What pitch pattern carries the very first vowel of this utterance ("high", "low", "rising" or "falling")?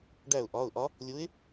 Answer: falling